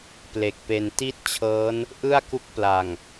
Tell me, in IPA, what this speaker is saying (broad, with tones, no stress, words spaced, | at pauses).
ple˨˩k̚pe˧n ti˦˥t̚ t͡ɕʰɤː˦˥n | ʔɯ˥˩a̯ku˦˥k̚ pla˨˩ŋ